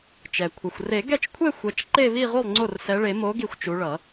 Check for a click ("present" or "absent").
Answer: present